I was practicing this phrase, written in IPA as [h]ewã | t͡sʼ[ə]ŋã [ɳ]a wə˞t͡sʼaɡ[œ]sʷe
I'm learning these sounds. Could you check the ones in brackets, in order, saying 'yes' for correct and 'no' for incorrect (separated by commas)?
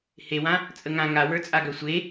yes, yes, no, yes